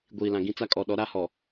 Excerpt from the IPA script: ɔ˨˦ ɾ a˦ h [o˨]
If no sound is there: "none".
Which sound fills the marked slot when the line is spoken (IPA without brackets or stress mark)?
ɔ˨